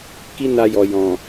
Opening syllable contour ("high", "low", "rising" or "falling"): high